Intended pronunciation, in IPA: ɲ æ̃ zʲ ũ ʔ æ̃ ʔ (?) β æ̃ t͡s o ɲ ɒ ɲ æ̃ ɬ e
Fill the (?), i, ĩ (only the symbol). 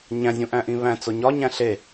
ĩ